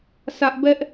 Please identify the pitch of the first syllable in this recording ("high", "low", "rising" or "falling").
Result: high